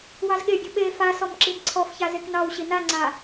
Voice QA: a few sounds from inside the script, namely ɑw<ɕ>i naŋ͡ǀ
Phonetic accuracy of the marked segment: correct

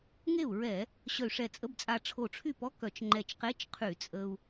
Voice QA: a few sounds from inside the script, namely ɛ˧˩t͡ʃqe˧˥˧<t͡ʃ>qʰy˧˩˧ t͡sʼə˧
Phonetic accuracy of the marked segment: correct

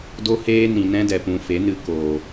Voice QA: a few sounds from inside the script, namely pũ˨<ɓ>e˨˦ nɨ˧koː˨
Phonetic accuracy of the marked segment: incorrect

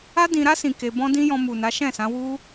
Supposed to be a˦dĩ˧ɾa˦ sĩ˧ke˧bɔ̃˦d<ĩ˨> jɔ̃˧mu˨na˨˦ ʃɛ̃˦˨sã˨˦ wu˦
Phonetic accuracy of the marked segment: incorrect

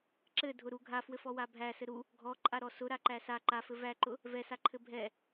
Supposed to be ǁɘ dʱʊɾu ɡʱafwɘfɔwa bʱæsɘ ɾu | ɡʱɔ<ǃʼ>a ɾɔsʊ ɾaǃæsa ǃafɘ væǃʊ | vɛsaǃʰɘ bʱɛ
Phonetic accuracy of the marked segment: correct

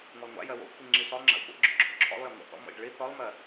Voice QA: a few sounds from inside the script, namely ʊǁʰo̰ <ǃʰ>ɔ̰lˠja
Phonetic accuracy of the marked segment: incorrect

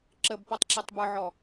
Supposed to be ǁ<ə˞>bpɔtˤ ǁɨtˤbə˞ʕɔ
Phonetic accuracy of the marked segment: incorrect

